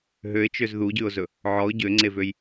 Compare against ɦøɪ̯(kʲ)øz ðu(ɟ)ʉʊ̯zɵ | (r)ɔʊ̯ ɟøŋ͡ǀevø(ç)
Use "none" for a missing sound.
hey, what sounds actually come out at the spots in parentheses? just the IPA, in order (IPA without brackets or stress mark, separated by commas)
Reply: t͡ʃ, ɟ, ʕ, j